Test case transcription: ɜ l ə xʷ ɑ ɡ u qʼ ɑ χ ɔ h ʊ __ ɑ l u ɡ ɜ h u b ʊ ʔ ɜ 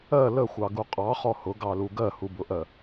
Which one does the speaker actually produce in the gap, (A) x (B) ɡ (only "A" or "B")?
B